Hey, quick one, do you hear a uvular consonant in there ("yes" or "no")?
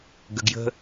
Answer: no